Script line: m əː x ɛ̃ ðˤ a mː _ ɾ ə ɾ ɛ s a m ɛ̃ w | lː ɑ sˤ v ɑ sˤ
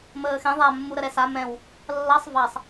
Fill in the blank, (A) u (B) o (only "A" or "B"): A